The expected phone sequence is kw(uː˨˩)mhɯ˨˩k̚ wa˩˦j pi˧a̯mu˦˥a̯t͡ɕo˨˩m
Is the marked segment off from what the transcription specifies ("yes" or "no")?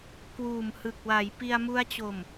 no